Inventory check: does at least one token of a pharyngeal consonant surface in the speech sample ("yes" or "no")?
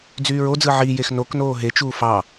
yes